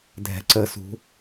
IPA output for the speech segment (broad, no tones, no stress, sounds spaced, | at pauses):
dʱ ɛ̤ ǀ ə s ṳ